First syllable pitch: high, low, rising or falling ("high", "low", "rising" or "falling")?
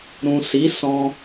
low